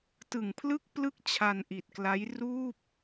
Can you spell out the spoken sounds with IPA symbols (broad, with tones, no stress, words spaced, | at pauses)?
tɯ˨˩ŋpʰlɯ˥˩k̚plɯ˥˩k̚ t͡ɕʰa˧nʔi˨˩t̚kla˦˥j ruː˥˩p̚